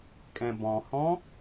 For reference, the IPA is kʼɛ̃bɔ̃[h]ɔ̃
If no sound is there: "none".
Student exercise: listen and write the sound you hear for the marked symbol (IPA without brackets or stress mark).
h